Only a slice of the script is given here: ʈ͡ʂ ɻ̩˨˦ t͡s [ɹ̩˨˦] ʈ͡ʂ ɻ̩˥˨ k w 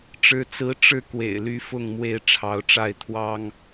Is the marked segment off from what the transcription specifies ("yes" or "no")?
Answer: no